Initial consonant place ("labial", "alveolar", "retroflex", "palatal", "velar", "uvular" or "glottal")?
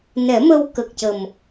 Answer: alveolar